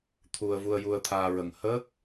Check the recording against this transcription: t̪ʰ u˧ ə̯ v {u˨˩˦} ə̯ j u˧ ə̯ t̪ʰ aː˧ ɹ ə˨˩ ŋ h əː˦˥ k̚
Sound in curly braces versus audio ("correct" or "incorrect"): incorrect